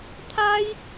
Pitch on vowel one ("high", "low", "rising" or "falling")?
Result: high